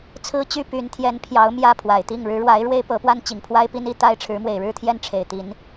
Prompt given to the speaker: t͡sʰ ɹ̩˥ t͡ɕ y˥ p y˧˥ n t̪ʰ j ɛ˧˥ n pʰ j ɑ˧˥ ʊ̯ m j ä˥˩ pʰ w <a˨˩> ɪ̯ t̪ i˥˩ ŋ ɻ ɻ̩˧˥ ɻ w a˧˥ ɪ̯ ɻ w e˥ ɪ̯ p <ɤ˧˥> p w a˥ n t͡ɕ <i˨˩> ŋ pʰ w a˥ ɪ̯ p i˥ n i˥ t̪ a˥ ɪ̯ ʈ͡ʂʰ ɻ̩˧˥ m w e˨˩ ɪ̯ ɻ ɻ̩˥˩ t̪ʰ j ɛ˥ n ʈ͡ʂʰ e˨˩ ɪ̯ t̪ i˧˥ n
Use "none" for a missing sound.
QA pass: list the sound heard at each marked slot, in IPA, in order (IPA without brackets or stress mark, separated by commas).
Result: a˨˩, ɤ˧˥, i˨˩